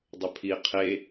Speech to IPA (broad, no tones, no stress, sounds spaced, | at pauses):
dˤ ə pʰ i qʰ e